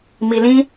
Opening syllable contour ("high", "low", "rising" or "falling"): low